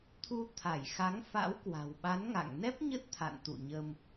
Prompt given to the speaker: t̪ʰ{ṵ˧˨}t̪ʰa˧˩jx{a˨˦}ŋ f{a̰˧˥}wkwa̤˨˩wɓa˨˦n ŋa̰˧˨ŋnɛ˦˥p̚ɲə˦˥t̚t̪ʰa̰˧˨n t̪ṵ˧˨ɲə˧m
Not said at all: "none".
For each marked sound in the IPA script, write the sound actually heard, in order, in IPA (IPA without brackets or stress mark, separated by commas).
u˧, a˨˦, a̰˧˥